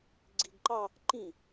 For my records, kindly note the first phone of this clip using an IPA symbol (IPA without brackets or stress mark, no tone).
ɡ͡ǀ